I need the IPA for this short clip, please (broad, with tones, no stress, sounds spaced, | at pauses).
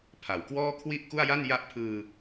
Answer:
pʰ a˨˩ w k w ɔː˥˩ kʰ w i˥˩ ʔ k u˥˩ a̯ j a˥˩ n j a˦˥ ʔ pʰ ɯː˧